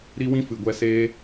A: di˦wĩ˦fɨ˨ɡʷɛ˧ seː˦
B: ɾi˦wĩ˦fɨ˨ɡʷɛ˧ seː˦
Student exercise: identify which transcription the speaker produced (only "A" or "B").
B